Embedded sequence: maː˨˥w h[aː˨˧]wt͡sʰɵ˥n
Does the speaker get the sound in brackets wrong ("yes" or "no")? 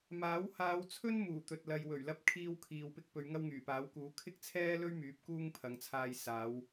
no